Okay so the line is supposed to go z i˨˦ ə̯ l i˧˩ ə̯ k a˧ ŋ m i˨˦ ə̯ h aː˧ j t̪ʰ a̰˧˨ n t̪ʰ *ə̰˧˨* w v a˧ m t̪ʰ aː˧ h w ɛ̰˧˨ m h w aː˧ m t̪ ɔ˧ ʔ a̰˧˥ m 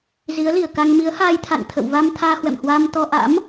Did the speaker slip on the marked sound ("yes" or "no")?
no